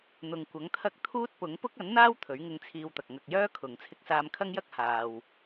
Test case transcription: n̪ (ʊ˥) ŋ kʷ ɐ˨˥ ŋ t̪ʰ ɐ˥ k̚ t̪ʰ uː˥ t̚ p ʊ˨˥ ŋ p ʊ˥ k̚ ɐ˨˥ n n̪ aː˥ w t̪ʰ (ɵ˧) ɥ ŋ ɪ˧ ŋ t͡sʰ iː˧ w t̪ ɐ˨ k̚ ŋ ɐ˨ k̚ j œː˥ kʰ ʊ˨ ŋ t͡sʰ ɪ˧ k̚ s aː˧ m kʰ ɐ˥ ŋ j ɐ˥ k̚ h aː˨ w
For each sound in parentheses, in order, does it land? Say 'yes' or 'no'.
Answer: no, no

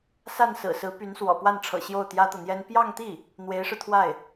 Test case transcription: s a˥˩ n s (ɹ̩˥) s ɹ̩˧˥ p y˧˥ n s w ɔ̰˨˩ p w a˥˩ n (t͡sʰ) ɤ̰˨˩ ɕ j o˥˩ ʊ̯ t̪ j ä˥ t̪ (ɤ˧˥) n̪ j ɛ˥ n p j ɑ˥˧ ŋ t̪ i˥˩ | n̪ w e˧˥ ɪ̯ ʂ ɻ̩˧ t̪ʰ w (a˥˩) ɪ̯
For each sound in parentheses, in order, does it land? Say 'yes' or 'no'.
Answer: no, no, no, yes

